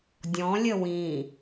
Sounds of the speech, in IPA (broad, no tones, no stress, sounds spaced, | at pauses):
dʲ ɔ̃ lʲ ə w ĩ